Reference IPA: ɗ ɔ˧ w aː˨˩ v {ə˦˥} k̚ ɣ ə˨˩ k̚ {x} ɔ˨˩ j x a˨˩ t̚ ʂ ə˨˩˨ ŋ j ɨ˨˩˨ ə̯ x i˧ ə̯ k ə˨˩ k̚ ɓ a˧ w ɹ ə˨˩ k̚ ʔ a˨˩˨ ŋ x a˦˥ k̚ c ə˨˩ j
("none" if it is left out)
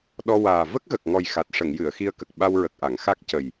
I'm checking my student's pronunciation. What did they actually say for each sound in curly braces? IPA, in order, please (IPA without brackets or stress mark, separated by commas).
ə˦˥, ŋ